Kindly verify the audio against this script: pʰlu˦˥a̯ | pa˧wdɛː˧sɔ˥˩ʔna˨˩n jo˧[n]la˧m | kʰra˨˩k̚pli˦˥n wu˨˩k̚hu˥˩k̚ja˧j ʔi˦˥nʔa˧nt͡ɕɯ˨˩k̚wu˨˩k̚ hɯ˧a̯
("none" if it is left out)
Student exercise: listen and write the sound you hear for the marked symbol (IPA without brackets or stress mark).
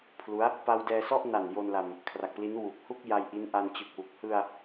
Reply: n